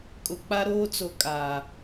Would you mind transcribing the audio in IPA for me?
kʼ ʊ˨ k͡p a˦ ɾ oː˦ t͡s o˨ kʼ a˨

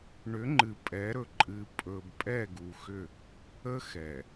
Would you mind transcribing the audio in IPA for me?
ɳ ʏ˨˦ ŋ͡ǃ ɨ˨ pʼ ɛ˨˦ ɾ ɵ˨ ǃʼ ɨ˨ pʼ ɵ˨ b pʼ ɛ˦˨ ɡ u˨ x ʏ˦˨ | ə˦ x ɛ˨

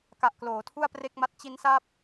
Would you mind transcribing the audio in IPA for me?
k a˨˩ ʔ k l oː˩˦ tʰ u˥˩ a̯ p r e˥˩ k̚ m a˦˥ t̚ t͡ɕ i˦˥ n s a˥˩ p̚

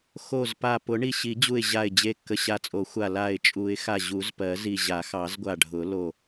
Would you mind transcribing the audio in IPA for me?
x o˧˩ z p a˧˩ p ʊ˨˩˦ ɳ i˧˩ ɕ i˨˩˦ d͡ʑ u˧˩ ɪ̯ ʑ a˧˩ ɪ̯ d͡ʑ e˧˩ kː ə˧˩ ɕ a˧˩ t͡sʼ o˨˩˦ xʷ a˧˩ l a˧˩ ɪ̯ t͡ʃʼ u˨˩˦ ɪ̯ x a˧˩ ʑ u˨˩˦ z p ɜ˨˩˦ z i˧˩ ʑ a˨˩˦ x ɑ˨˩˦ z ɡʷ a˧˩ ɖʱ ʊ˨˩˦ l o˧˩

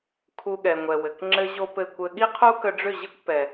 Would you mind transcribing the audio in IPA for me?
kʰ u˧ ɠ ɛ˨ ŋʷ ɛ˨ w ɘ˨ k ŋ͡ǁ ɘ˦ ʑ o˦ p ɘ˦˨ kʷ ɘ˧ ɠ i˦ qʰ u˦ k ə˧ ɖ͡ʐ ʏ˦˨ ʑ ɘ˦ kʷ p ɛ˨

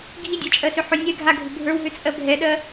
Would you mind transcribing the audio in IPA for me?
ɡʱ i dʲ a t͡ʃʼ ɜ s ʏ ħ ʏ nʲ ɛ ɡʱ a ɡʱ ʏ bʱ ə˞ w ɦ ʏ t͡sʼ ɜ bʱ ɛ ɗ ɜ

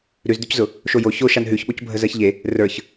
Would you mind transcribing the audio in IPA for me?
ɾ ʉ z d̪ ʉ c z ʊ | ʃ o j o ç o ʃ a n ɦ ʉ ç ɓ o c bʱ ə z ɜ ç ʎ e | r ə˞ ç

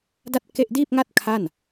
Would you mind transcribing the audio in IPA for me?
d a˥˩ t̚ k e˥˩ ʔ d iː˥˩ p̚ ŋ a˥˩ t̚ kʰ a˥˩ n

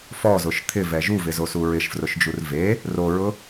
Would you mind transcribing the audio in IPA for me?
f ɔ z ʊ ʃ t̪ʰ ɪ v ɛ ʒ u v ɪ z o s u ɹ ɪ ʃ f r ʊ ʃ d͡ʒ u r v e | r o ɹ ʊ

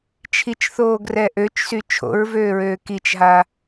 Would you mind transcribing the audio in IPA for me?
t͡ʃʰ i t͡ʃ θ oː ɡ r ɛ ʔ ø t͡ʃ s y t͡ʃʰ o̰ ɹ v øː ɹ øː k i t͡ʃ ɦ a

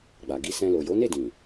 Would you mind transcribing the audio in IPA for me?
ɡ͡b a˨ ɡ i˧ s ɛ̃˧ l o˨ j o˨˦ n e˦˨ d ĩ˨

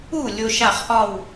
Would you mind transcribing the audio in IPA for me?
u˥˩ lʲ o˧ ʃ a˥˩ χ ʔ ɒ˥˩ w

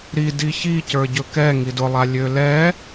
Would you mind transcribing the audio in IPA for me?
ɾ i d i ç i c ə˞ ɟ ɵ k ɛ ŋ i d ʊ lˠ a lʲ ø l ɛ

